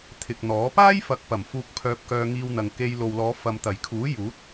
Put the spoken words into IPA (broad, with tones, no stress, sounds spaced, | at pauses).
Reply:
t̪ʰ ɪ˨ k̚ n̪ ɔː˨˥ p aː˥ j f ɐ˨˥ k̚ p ɐ˨˩ m f uː˧ k̚ pʰ œː˧ p̚ k œː˧ ŋ iː˧ w n̪ ɐ˨ ŋ k e˧ j l o˨ w l ɔː˨˧ f ɐ˨ m t̪ ɐ˨˩ j kʰ uː˨˥ j uː˨˥ t̚